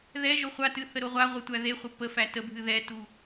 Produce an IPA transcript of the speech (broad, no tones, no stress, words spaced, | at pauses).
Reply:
ðɛ ʒoχʷatɨ θəɾoʁʷaʁʷə tʷæðeχʷə pəfæ təbʱɨ ðɛtu